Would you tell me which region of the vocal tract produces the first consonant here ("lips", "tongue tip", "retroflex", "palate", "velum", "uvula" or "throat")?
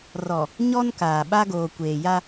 tongue tip